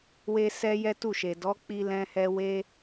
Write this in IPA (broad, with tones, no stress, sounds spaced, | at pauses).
w e˧ s ɛ˦ j ɛ˦ t u˦˨ ʃ e˨ d ɔ˨˦ k͡p i˧ l ɛ̃˧ h ɛ˧ w e˦